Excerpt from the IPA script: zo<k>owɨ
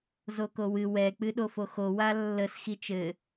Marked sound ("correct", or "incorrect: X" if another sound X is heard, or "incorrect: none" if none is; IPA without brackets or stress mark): correct